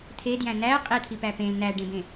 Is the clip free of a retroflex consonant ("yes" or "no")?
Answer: no